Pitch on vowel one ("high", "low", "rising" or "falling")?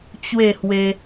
falling